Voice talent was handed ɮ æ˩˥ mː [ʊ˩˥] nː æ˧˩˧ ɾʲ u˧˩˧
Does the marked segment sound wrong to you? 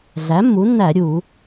yes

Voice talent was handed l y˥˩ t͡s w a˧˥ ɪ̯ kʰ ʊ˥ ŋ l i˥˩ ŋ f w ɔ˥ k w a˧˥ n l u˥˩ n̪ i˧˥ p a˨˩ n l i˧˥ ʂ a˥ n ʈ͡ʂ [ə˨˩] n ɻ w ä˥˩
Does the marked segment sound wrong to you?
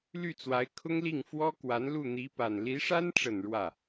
no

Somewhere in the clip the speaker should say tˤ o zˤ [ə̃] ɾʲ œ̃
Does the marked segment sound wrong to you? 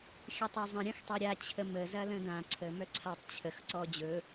no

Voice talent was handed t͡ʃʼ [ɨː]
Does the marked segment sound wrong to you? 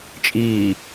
yes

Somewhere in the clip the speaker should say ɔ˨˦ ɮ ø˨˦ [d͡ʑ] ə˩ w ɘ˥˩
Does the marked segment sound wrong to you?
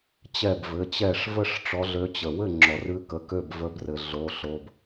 yes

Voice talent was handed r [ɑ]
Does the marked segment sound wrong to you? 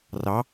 no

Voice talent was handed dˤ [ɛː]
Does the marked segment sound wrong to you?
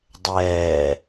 no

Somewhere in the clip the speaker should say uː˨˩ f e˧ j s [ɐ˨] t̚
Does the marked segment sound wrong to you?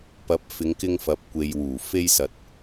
no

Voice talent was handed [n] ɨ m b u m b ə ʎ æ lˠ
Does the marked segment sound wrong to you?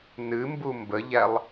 no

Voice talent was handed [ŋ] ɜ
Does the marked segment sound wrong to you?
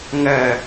no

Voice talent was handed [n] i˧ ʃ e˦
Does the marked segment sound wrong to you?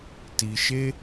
yes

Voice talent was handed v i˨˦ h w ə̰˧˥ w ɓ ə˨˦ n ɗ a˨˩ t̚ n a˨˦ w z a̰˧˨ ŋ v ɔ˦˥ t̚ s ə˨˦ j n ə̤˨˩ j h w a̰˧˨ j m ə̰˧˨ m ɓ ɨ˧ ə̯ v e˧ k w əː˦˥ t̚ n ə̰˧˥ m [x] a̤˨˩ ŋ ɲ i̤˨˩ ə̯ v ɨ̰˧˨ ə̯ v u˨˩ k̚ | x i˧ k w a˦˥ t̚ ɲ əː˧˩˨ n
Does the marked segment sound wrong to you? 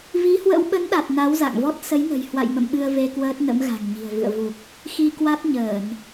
yes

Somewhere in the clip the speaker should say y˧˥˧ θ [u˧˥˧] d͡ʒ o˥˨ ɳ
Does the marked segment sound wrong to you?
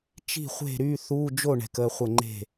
no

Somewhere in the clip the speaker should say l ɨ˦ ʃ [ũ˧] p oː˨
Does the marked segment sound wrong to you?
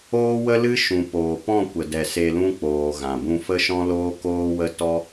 yes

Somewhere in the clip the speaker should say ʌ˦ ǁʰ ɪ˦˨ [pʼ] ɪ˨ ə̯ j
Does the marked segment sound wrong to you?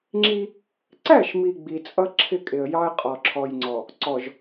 yes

